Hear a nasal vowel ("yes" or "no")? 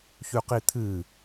no